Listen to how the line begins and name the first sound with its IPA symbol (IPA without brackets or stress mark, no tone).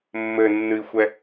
mː